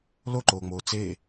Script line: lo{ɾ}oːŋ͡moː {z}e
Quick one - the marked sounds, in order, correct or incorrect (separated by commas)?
incorrect, incorrect